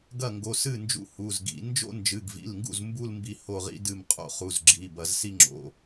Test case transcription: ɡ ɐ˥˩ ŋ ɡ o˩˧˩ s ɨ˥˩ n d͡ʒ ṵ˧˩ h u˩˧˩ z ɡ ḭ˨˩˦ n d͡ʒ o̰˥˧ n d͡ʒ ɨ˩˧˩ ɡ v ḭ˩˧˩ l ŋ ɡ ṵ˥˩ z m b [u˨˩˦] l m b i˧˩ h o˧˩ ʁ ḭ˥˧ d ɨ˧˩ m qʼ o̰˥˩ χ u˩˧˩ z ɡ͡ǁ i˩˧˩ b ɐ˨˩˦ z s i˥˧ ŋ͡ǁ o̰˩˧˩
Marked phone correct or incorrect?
incorrect: u˥˧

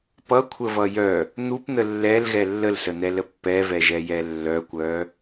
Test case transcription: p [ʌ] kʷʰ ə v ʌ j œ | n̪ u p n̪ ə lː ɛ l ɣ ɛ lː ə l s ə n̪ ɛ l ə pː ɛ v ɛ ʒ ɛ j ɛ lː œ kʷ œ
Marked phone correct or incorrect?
correct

